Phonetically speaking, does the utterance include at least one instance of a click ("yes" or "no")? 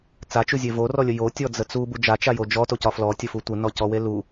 no